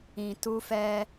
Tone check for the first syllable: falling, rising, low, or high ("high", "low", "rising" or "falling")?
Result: low